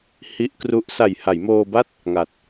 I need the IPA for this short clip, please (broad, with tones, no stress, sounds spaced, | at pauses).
h i˦˥ ʔ k r u˦˥ ʔ s a˨˩ j h a˩˦ j m oː˧ b a˥˩ t̚ | ŋ a˨˩ t̚